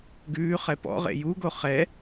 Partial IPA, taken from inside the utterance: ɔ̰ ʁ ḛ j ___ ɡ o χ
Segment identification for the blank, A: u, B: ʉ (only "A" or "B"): A